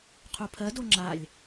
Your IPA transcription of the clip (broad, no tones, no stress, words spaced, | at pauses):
qʰupʰɜdo ŋ͡ǁalʲ